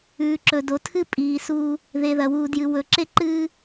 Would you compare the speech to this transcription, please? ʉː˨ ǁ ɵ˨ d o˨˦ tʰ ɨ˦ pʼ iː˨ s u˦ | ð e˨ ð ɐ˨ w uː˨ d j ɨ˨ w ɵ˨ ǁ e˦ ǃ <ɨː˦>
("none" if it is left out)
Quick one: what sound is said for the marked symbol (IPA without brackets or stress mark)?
ɨː˦